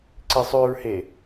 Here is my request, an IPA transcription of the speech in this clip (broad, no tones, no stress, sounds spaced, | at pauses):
ǀ i sˤ ʉ ɹ h e